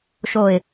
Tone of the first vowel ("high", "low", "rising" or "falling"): low